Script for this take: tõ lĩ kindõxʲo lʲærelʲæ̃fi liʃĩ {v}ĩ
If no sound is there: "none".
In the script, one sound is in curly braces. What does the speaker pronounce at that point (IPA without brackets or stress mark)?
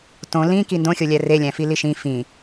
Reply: f